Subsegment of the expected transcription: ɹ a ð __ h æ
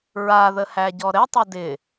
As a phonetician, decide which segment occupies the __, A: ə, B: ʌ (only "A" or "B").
A